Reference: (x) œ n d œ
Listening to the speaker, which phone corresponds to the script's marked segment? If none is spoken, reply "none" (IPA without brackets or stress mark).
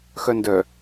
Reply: x